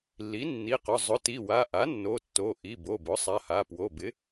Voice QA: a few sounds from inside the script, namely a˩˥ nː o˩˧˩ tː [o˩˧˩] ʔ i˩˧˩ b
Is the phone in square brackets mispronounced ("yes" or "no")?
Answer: no